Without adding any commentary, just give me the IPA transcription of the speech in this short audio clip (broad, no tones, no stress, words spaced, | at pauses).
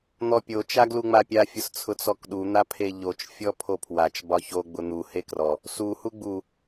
n̪ɔpʲo t͡ʃaɡluŋ͡mapʲa fʲʊst͡sʰʊt͡sɔkɗu n̪apʰeʎot͡ʃ fʲɔpʰopʰwat͡ʃ bɒço ɡ͡bʊn̪u hekrɔ | su huɡ͡bu